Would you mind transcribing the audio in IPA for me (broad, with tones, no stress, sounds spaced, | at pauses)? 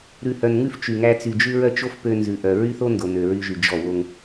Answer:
ɾ ʉ˨ h œ˨ n ŋ ʉ˦ f t͡ʃ y˨ ŋ æ˦ t͡s y˨ d͡ʒ ʉ˦ ɹ œ˦ t͡ʃ o˦ f p ø˦ n z ʉ˨ ʔ œ˨ ɹ y˦ θ o˦ n d o˨ n ø˨ ɹ y˦ ʒ y˨ d͡ʒ ɔ˦˨ w o˦ ŋ